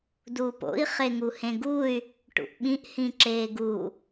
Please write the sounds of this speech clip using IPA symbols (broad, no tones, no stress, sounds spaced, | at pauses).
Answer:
d uː p o̰ i̯ χ e ŋ u h ẽ ɡ u y̯ | ʈ ṵ ʔ ɓ ĩ ʔ h ĩ ǁ eː ɡ u